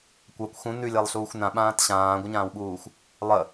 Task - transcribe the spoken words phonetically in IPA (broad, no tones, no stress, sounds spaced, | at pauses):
kʷ a kʷ x ũ n ʉ lʲ a lˠ ɬ uː xʷ n ã ɓ ãː t ɕ ãː ɡʷ ə ɲ ãː w ɓ uː xʷ | lˠ ə